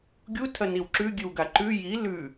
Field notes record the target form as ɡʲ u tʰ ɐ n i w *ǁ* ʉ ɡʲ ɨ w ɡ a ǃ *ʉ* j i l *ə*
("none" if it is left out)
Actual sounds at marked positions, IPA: ǁ, ʉ, ʉ

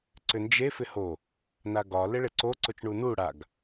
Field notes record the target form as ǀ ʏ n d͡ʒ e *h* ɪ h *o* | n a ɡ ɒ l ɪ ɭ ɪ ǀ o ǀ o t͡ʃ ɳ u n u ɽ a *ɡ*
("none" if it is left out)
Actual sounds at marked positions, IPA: f, o, ɡ

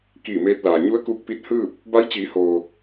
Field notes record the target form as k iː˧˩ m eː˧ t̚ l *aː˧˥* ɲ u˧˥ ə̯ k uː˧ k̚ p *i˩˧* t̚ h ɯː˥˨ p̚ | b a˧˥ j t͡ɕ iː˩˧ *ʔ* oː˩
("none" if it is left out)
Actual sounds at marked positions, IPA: aː˩, i˧˥, h

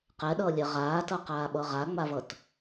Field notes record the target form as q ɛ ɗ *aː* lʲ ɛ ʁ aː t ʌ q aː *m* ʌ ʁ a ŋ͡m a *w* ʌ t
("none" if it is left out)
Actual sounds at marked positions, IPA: ʌː, ɓ, v

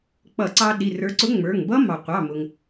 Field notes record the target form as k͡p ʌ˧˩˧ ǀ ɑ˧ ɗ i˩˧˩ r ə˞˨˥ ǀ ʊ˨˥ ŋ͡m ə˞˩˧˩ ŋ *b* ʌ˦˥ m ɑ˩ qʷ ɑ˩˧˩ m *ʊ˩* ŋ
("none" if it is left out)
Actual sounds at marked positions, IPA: b, ʊ˩

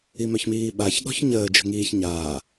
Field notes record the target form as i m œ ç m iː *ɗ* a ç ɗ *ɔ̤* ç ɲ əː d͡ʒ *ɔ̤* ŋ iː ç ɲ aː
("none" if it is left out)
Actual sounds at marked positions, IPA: ɓ, ɔ̤, ə̤

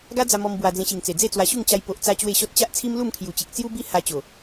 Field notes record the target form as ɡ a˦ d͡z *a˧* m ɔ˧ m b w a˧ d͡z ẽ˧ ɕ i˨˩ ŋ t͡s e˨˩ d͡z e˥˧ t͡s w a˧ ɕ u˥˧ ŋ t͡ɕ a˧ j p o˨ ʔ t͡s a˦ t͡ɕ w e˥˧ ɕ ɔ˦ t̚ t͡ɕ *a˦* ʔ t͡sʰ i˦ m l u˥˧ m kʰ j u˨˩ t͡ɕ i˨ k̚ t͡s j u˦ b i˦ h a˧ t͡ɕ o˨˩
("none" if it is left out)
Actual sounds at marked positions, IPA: a˧, a˦

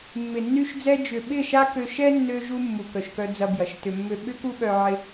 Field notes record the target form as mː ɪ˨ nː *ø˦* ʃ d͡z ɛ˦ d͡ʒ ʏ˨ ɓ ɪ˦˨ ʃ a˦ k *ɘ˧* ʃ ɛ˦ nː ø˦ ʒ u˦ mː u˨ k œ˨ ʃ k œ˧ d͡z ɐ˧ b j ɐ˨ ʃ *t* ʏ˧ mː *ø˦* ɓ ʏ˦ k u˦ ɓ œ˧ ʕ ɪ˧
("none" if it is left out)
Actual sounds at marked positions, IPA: y˦, ø˧, t, ø˦

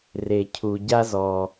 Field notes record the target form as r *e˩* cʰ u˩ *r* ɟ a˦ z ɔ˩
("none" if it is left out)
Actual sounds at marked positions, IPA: e˩, none

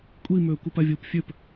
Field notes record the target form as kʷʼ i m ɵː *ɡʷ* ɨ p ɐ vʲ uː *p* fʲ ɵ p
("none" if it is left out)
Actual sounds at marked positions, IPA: kʷ, p

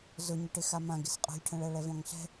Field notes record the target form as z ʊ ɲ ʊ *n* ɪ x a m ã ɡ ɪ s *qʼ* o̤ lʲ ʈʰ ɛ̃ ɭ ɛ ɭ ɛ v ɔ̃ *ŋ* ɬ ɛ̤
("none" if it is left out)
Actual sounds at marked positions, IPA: ʈ, qʼ, ŋ

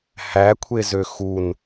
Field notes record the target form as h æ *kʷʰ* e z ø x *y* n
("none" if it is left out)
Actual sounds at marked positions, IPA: kʷʰ, u

